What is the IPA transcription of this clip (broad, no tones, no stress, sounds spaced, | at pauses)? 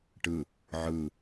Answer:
ʈ ɯ | ʕ ɯ